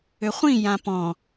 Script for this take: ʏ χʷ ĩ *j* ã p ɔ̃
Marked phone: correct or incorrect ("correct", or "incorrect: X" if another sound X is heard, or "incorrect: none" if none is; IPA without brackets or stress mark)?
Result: correct